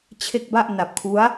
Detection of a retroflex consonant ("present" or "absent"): absent